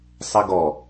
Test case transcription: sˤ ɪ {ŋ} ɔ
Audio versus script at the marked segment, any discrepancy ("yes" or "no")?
yes